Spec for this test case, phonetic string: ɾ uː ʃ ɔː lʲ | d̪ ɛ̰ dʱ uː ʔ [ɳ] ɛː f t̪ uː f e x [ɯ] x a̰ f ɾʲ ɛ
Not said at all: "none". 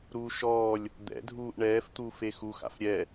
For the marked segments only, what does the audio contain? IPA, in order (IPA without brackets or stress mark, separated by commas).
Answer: ɳ, u